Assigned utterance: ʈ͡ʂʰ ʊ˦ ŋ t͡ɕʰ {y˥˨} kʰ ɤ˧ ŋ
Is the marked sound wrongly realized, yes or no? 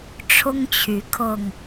yes